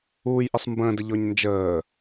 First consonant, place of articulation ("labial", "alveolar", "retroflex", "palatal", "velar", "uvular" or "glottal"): palatal